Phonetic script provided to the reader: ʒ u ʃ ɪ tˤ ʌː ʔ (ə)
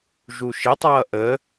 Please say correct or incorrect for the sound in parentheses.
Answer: correct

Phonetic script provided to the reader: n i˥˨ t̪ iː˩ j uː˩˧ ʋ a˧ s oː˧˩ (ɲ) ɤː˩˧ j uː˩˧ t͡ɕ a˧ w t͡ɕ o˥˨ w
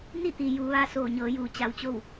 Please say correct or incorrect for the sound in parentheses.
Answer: correct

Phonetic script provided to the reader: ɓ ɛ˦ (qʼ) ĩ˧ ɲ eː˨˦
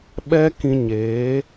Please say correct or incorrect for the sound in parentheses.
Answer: incorrect: k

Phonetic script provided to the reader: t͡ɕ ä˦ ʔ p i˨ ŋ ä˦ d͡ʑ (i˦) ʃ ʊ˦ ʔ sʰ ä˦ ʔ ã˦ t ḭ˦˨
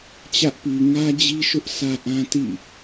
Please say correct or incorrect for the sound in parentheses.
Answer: correct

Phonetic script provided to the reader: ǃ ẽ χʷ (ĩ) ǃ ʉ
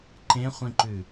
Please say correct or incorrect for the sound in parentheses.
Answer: correct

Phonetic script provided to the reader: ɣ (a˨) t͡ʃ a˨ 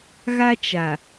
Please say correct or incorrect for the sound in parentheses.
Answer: incorrect: a˦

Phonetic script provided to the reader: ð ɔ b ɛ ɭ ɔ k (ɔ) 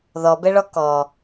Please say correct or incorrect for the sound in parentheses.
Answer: correct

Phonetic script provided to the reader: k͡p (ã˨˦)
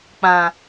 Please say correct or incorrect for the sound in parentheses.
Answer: incorrect: ã˨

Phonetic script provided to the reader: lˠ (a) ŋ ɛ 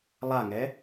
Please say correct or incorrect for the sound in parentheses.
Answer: correct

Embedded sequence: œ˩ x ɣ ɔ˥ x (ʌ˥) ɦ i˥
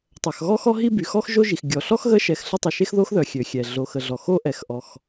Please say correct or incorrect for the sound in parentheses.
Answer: incorrect: ɔ˥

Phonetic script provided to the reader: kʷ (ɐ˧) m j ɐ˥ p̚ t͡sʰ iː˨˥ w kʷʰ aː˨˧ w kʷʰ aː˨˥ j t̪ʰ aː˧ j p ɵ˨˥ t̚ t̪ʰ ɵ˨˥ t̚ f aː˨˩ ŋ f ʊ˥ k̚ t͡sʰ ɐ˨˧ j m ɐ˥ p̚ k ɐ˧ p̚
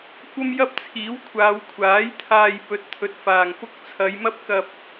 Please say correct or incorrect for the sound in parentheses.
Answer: incorrect: ɐ˥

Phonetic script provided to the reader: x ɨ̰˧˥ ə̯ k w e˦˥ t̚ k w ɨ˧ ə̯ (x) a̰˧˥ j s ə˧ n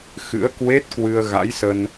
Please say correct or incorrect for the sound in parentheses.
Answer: incorrect: ɣ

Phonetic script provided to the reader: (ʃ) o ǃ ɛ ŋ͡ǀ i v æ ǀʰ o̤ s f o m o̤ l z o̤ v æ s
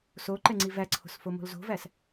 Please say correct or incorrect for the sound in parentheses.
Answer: incorrect: s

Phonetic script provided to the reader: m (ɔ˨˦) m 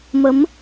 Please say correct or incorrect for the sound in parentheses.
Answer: incorrect: ə˨˦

